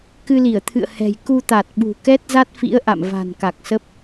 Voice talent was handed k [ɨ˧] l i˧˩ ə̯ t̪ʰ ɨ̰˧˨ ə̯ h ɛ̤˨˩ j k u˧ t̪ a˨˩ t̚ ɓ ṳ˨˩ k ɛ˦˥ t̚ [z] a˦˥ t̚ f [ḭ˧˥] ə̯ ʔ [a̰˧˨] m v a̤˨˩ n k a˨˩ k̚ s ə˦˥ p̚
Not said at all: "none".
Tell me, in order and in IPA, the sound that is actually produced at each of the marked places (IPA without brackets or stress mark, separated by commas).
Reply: ɨ˧, z, ḭ˧˥, a̰˧˨